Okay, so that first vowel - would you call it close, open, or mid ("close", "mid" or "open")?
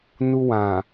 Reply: close